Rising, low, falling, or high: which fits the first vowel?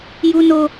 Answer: high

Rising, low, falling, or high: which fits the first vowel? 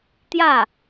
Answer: falling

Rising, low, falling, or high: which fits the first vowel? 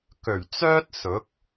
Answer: low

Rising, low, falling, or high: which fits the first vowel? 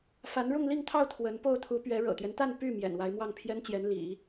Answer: rising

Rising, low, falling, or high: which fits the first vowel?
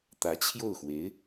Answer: rising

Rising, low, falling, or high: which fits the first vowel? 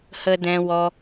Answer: high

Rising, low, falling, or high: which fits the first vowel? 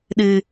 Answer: low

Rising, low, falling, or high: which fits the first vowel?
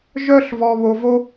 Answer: high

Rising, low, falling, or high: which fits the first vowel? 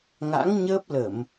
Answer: rising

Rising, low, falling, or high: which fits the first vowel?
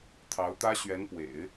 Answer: rising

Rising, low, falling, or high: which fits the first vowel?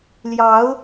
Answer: rising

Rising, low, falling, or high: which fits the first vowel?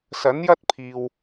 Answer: rising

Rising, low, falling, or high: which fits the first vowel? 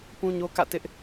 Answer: high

